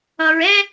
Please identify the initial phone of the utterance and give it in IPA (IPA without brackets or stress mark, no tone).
ʌ